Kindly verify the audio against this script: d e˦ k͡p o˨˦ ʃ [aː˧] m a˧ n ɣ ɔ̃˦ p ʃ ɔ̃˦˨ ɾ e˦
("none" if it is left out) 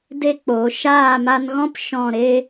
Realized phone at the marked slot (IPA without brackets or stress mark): aː˦˨